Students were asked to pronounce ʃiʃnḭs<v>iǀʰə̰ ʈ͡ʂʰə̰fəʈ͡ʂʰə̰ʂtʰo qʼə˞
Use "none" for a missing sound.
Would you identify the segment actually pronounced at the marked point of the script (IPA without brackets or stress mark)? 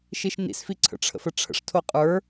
f